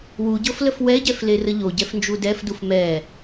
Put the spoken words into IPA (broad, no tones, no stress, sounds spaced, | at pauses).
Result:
w u ɟ ɤ f l ə f w ɛ ɟ ɛ f l e r ə ʎ o ɟ ɛ f n d͡ʒ u d ɛ f d u f m ɛ